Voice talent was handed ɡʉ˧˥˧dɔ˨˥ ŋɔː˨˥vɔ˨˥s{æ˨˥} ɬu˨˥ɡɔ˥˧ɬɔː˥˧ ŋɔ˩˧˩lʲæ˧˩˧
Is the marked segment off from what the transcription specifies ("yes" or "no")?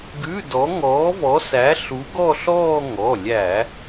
no